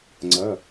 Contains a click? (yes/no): yes